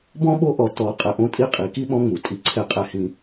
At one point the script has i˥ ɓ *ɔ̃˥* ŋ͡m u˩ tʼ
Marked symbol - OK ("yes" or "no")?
no